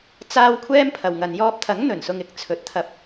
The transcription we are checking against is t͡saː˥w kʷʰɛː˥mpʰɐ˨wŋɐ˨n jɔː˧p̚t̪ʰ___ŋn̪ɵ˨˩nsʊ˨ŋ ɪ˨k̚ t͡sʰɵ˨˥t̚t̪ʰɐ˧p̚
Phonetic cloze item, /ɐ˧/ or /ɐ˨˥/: ɐ˨˥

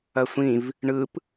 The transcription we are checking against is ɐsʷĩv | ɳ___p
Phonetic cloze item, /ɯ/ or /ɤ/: ɯ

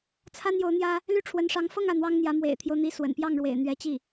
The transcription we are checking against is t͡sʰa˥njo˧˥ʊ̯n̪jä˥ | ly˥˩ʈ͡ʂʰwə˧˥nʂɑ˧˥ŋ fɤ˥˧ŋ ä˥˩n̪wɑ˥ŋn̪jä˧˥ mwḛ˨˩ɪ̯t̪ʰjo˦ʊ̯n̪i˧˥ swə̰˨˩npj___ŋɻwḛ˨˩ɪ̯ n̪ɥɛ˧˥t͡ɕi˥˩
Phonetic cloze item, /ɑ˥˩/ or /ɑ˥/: ɑ˥˩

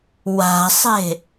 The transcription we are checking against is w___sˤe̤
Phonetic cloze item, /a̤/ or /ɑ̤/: a̤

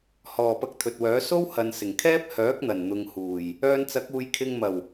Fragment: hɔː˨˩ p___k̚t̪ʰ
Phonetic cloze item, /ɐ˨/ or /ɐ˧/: ɐ˧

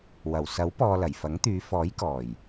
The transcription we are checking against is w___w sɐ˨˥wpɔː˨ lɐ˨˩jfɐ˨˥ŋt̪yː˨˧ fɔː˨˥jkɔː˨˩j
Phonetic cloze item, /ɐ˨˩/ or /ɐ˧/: ɐ˨˩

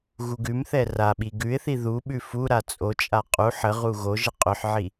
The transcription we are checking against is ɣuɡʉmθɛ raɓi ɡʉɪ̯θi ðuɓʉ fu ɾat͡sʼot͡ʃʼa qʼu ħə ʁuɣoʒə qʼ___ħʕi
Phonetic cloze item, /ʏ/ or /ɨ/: ʏ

